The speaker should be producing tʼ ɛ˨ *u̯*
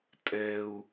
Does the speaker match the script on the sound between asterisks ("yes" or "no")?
yes